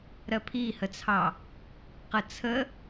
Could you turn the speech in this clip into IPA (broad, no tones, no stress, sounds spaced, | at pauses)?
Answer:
ɾ ɜ pʰ i h ə t͡sʰ ɑ | q ə t͡sʰ ə